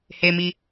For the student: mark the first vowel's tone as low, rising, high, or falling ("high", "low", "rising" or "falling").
low